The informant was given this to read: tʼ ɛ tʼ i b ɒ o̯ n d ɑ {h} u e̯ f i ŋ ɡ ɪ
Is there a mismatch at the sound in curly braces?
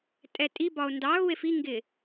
yes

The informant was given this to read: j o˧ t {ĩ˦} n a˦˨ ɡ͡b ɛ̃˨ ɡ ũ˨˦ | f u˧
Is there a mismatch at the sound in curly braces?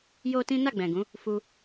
no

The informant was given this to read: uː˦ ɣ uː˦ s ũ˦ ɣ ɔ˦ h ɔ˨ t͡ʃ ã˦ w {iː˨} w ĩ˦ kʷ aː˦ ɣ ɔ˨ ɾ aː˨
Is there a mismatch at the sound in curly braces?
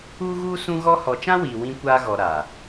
no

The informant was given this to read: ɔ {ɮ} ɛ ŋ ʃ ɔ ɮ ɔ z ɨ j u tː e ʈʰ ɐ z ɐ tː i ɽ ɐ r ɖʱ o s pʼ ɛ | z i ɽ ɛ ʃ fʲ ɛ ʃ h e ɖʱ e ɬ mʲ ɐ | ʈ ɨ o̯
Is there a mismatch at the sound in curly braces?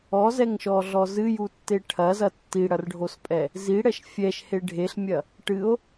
yes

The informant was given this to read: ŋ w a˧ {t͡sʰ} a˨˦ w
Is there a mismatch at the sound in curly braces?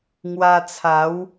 no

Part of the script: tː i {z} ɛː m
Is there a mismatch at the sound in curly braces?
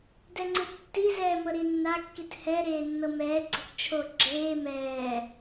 no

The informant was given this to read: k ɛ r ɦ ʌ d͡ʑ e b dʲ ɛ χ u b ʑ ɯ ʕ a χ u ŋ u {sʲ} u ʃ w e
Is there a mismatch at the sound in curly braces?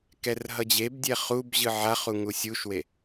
no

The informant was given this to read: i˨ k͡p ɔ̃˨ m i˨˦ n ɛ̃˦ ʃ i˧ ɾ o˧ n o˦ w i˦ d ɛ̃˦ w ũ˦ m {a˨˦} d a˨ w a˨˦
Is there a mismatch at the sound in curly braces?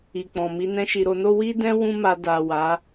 yes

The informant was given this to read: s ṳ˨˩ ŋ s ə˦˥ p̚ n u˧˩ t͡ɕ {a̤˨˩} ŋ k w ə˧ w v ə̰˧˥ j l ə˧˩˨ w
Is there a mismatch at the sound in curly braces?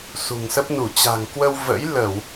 no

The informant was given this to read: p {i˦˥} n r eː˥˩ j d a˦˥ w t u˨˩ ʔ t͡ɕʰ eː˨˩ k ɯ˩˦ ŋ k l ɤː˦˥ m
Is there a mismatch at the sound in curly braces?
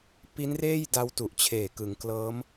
no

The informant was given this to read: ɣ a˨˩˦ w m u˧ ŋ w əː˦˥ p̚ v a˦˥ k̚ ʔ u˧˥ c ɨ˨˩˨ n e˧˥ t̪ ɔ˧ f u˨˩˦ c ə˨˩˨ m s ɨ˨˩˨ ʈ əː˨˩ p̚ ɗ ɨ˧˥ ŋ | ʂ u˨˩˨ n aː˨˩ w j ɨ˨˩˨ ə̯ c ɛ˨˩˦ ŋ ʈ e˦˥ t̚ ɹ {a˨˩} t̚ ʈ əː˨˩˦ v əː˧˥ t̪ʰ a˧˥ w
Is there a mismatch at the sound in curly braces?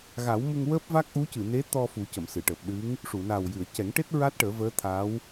yes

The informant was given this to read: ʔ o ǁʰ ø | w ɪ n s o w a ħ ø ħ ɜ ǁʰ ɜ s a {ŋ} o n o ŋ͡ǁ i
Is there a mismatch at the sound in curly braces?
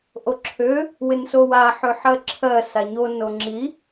yes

